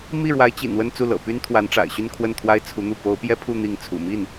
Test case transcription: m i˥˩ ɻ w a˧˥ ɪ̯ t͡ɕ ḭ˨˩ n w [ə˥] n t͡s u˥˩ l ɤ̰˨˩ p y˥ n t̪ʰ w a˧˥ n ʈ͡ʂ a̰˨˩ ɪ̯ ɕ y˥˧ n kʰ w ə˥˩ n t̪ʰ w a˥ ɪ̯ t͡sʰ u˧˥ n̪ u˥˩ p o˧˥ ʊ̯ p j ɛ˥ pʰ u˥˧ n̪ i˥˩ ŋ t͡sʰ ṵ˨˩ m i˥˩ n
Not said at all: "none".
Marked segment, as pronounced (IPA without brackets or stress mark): ə˥˧